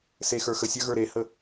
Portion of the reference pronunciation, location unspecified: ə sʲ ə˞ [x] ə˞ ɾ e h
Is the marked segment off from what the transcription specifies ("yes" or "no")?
yes